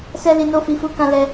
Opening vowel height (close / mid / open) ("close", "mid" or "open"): mid